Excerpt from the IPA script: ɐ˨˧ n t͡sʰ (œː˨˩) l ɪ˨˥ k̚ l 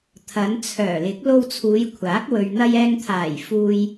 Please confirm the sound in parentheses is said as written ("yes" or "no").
yes